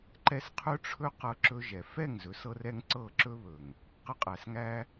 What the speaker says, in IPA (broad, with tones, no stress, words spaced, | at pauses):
ǃɛ˦s qʰɵ˦ʈ͡ʂʰɵ˦ qɤ˧ǁɵ˧ ʒɛ˨ fɛ˦˨ŋzɵ˨˦sɤ˧rɛ˧ŋ ǀɤ˦˨ǁɵ˦βɵ˨ŋ | qə˧qʼæ˨sŋæ˧